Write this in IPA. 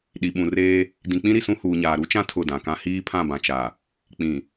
ɗi˨ɓũ˨reː˦ | dĩ˨k͡pĩ˦ ɾi˨sũ˦huː˨ɲaː˨ ɾu˦t͡ʃã˦ tʰʊ˦˨dã˨kã˦ hiː˦pʰã˦˨bã˨t͡ʃa˨ | k͡pĩ˨

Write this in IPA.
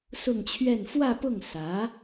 sʊ˥˧ŋt͡ɕʰɥɛ˥˧n fwä˥˧pʊ˥˩ŋ sä˧˥

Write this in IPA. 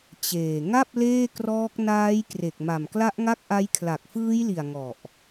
t͡ɕeː˨˩ ŋa˥˩p̚ leː˥˩krɔː˦˥k̚ naː˦˥jkre˨˩k̚ ma˨˩mkla˦˥ʔŋa˥˩k̚ʔa˦˥j kʰla˨˩k̚fɯː˦˥jli˨˩a̯ ŋɔ˨˩ʔ

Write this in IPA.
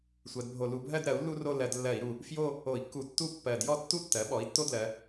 sʷɜ˩˧dbʱo˧˩˧ lu˩˧bʱɜ˥˧d ɾɜ˩˥u̯lːu˥ro˥˧ lɜ˧˩˧dlːɜ˧˩˧i̯ɾu˨˩ | fjo˥˧ | o˧˩˧i̯kːu˧˩˧ tːu˥ pːɜ˨˩djɔ˥˧tːu˥tːɜ˩˥ ɓɔ˩˥i̯tːo˥dlɜ˩˧

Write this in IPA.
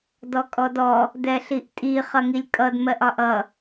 dɔkʼɔdɔ | dɛɬiʔtʼi χʌŋilʲkʼʌd mɜʔɒʔʌ

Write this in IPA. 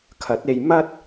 kʰɐ˨˥t̚e˧j mɐ˥t̚

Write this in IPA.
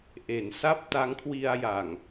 ʔe˩˦nsa˥˩p̚ ta˦˥ŋkʰwi˧a̯ja˨˩ŋ

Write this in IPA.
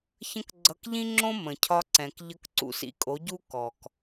çə̃˥kɡ͡ǀʌ˧k ʎĩ˥ŋ͡ǁõ˥ mə̃˩cʰɒ˧ ǀɛ̃˩k ʎə˧k ǀṵ˧sḭ˧kʼo˩˥ɟu˥ kɔ˩k

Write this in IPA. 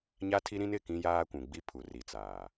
ɲa˦tʰi˦ɾĩ˦n ɪ˦˨kĩ˦jaː˦kʷũ˨ ɡ͡bi˦ pʰu˨ri˨t͡saː˨

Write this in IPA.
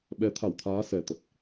ɓɛ˨˦t̪ʰa˧˩wt̪ʰaː˨˦ sɛ˨˩t̪ə˨˩t̚

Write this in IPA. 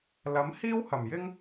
lɐ˨˥mhiː˥whɐ˨˩mjɪ˥ŋ

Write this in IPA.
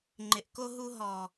ŋ͡ǃɪ˨ʔko˦ ɦu˧ɦɔ˨

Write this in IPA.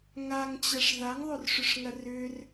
ŋaŋt͡ɕɐʂ ðaŋðˤorʂʏʂŋɐ rʏr

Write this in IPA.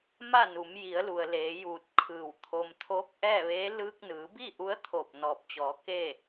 ma˥˨nu˩˧mji˩˧ə̯lu˩ə̯ leː˩˧juː˧˩t̚kʰɯː˧˩w t̪ʰo˧m t̪ʰoː˧˥k̚ʔɛː˥˨ʋeː˧˥ lɯː˧k̚nɯː˩˧bi˥˨ ʔu˧˥ə̯t̪ʰo˧˩p̚ nɔː˧˩p̚t͡ɕɔː˩˧ke˥˨

